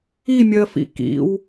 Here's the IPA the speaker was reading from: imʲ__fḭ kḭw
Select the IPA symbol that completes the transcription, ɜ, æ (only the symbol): ɜ